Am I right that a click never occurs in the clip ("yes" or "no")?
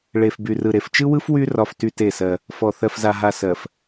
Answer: yes